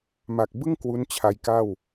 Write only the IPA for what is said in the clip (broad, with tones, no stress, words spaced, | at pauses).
ma˨˩k̚bɯ˥˩ŋ kwu˦˥n t͡ɕʰa˧jka˥˩w